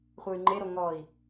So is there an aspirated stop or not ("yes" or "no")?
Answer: no